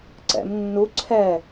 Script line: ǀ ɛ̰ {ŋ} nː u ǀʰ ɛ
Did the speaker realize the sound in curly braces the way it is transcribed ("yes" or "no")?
no